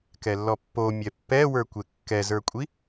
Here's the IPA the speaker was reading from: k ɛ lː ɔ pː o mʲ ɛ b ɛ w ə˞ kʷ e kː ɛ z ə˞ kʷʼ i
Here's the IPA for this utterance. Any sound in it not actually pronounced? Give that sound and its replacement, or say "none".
b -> pː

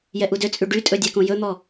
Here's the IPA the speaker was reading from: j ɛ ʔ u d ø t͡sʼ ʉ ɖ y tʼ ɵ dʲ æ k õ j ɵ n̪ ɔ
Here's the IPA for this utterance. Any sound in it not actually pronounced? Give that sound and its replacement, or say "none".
none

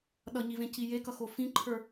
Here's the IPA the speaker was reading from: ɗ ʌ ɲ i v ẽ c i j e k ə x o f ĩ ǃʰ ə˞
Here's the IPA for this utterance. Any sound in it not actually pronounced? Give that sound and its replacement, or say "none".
ə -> ʌ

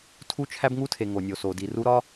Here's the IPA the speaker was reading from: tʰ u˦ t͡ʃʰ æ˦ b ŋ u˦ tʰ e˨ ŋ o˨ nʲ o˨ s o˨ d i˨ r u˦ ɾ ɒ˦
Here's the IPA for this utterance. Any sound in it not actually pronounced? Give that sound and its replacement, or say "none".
none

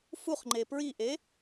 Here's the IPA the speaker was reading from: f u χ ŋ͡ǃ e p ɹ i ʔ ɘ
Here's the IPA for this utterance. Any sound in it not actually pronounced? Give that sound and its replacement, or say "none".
ɘ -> e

